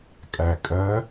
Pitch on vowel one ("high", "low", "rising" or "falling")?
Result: low